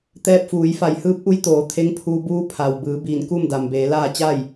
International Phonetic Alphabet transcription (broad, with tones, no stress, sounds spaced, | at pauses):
t̪ ɛː˧ p̚ f uː˩˧ j f a˧˩ j h ɯː˧˥ p̚ ʔ u˧˥ j t̪ oː˩˧ t̪ʰ e˧˥ ŋ pʰ uː˧ b uː˧˥ pʰ a˩ w b ɯː˩˧ b iː˧˩ n k u˥˨ m d a˩ m b eː˩˧ l aː˥˨ t͡ɕ a˥˨ j